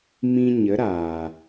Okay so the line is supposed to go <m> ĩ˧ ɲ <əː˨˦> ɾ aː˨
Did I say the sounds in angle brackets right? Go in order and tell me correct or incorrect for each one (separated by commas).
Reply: correct, incorrect